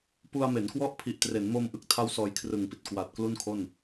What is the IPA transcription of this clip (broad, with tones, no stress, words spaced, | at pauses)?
pu˧a̯ me˩˦nkwɔ˥˩ʔpʰi˨˩ʔ tre˩˦nmoː˧mʔɯ˦˥k̚tʰa˦˥w sɔː˧jkʰrɯ˨˩ŋpi˨˩t̚ kwa˨˩t̚ klu˥˩nkʰo˥˩n